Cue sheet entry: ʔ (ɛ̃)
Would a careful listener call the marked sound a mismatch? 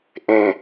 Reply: yes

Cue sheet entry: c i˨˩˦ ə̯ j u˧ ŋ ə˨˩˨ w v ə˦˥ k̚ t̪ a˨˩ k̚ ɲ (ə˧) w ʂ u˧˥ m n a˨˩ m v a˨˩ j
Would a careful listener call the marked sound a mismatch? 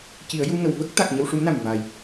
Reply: no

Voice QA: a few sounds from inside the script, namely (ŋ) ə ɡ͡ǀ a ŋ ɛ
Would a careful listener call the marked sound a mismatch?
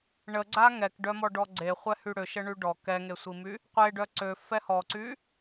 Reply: yes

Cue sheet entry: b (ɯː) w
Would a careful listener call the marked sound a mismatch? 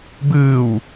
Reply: no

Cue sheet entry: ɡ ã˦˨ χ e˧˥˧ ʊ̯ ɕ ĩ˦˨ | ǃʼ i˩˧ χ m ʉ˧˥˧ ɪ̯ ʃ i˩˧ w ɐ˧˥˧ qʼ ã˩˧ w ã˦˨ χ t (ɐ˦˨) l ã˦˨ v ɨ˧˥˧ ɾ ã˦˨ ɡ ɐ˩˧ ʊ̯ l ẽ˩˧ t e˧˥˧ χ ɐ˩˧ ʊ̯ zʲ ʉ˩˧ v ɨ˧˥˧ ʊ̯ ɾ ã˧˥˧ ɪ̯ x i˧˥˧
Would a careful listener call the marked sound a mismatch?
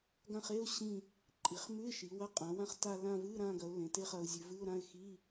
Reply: yes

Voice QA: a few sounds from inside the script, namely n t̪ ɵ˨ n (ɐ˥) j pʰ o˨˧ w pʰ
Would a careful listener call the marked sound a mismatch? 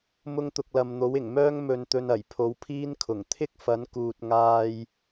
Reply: yes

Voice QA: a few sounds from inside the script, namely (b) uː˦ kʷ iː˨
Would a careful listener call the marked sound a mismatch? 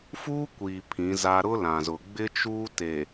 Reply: yes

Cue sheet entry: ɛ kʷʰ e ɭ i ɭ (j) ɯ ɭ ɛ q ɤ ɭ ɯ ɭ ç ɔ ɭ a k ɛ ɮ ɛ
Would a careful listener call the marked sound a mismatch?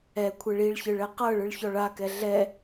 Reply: yes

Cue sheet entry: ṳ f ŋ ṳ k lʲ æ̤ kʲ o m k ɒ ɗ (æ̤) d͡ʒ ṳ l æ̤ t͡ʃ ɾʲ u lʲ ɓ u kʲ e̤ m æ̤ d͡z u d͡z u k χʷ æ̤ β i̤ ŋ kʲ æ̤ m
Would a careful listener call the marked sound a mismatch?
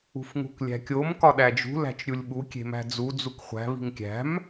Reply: yes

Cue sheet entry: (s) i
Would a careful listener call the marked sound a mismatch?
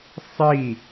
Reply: yes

